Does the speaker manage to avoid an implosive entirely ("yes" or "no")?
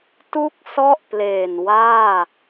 yes